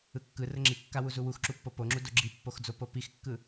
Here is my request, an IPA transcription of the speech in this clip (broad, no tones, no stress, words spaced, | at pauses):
ɯkːɯ rəŋ͡ǁi kːawu zuwuxǁupːo poŋ͡ǁu doɡ͡ǁipːoxd͡zo popixkːɯ